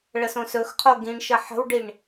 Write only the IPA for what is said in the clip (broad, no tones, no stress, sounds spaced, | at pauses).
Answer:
ɭ ə s õ s ɵ x qʰ o ɡ ĩ ɳ ʃ ə ħ ə̤ w ɖ i ɳ